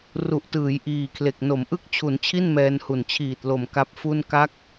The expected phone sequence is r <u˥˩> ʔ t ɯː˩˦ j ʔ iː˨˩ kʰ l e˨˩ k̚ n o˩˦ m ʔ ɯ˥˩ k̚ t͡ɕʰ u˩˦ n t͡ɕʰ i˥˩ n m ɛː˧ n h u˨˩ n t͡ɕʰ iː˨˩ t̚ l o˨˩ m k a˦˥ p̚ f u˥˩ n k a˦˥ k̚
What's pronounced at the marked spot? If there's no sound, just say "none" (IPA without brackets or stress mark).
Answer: u˨˩